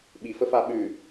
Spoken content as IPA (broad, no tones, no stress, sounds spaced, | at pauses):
ɓ i f ə f a ɓ ʉ